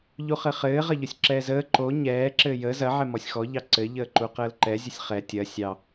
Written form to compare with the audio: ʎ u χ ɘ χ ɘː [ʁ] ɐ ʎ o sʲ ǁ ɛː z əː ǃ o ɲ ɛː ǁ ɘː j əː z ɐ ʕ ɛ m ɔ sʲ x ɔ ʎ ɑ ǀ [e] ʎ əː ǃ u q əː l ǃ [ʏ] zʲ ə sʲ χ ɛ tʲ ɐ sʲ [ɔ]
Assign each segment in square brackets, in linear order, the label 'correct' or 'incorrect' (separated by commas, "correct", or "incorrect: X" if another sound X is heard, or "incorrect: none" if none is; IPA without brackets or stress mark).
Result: correct, incorrect: ɘ, incorrect: ɛ, incorrect: ɑ